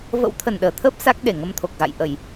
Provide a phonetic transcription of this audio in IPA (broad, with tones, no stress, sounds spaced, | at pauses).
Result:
v ə̰˧˥ w t̪ʰ ə˨˩ n ɗ əː˨˩ t̪ʰ əː˦˥ p̚ s a˦˥ k̚ ɗ e˧˩ ŋ ə˧ m t̪ʰ o˨˩ k̚ ɣ a̰˧˨ j ʔ ə˧˩˨ j